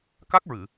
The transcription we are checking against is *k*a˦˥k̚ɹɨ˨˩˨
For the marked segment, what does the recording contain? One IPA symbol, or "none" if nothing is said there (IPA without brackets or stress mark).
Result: k